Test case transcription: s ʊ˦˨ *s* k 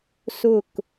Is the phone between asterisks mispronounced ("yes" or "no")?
yes